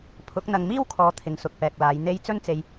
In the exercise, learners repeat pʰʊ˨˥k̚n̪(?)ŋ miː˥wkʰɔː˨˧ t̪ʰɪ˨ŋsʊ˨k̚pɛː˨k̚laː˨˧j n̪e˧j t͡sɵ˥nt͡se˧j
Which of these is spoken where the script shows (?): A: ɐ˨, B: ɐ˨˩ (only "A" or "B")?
A